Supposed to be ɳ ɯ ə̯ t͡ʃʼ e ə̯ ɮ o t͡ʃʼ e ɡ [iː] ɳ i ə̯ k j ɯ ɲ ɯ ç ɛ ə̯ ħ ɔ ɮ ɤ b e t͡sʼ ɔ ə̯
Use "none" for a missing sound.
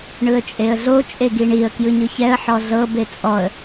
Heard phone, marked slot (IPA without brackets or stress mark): i